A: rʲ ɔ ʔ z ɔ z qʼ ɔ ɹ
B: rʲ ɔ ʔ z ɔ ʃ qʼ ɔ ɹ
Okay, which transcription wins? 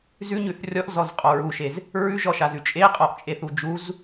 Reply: A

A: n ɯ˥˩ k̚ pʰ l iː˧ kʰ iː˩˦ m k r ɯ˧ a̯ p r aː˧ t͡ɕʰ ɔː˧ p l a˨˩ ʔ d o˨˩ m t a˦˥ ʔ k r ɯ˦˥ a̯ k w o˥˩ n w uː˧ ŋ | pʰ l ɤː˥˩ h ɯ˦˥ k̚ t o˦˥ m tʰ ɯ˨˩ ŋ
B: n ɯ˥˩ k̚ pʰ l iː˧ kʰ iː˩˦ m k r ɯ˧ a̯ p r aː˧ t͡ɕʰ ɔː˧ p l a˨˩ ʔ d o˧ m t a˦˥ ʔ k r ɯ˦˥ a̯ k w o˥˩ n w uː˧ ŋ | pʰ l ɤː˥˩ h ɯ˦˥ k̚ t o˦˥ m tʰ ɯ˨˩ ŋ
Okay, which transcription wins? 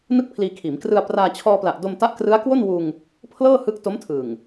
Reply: B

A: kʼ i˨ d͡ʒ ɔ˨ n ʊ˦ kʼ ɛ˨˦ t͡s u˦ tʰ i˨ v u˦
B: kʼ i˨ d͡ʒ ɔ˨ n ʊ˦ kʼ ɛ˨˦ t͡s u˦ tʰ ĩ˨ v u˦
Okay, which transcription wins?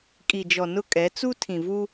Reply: B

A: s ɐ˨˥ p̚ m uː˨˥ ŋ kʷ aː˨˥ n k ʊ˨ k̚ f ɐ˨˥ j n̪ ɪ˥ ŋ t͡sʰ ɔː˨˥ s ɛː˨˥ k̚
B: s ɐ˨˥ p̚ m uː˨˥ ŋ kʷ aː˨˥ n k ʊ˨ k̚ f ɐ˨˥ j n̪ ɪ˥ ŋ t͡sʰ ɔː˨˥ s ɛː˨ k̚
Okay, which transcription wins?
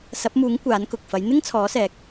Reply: A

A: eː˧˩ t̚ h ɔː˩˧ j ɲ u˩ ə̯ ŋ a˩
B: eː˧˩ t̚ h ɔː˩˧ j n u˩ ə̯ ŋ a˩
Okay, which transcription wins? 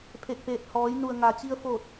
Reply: B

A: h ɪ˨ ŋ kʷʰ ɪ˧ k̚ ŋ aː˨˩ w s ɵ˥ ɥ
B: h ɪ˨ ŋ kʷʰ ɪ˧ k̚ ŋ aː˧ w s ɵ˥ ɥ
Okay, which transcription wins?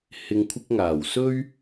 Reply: A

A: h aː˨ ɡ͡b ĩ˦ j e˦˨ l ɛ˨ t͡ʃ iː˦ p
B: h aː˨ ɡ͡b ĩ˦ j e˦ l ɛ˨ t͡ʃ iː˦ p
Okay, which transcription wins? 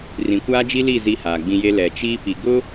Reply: B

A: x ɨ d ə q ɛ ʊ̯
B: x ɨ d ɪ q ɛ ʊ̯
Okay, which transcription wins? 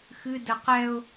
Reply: A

